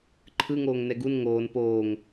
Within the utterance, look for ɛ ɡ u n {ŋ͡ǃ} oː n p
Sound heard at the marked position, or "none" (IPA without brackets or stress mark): ŋ